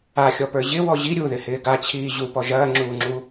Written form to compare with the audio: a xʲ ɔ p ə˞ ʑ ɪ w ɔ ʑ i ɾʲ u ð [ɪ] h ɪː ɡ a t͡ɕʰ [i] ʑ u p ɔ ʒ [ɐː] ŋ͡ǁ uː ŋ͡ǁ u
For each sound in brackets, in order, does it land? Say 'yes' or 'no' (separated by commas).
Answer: yes, no, yes